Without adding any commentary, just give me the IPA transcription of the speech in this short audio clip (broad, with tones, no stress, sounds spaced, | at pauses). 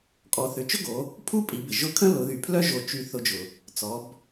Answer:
kʼ ɔ˩˧ θ ʏ˩ t͡ʃ ʊ˥ ɡ o˩˧ | pʰ u˥ pʼ i˩˧ b ɪ˩ ʒ ʊ˧˥ kʰ ə̃˥ l ʊ˩˧ ð y˩ pʰ l œ˥ ʒ o˧ t͡ʃ y˧˥ θ ʊ˧ d͡ʒ ʊ˩ | t͡s ɔ˩˧ b